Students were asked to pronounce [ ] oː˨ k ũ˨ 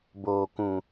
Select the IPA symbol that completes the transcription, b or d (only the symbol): b